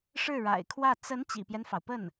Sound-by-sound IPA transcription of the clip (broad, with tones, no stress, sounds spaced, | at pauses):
ʂ ɻ̩˥˩ ɻ a̰˨˩ ɪ̯ kʰ w ä˥˩ t͡s ə˧˥ n t͡ɕ ḭ˨˩ p j ɛ˦ n f ɑ˩ ʊ̯ p ə˥˩ n